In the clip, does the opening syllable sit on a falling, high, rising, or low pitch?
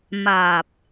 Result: low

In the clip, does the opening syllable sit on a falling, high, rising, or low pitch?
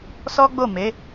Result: high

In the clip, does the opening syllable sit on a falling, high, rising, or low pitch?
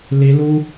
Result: rising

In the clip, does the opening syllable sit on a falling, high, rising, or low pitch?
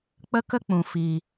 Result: high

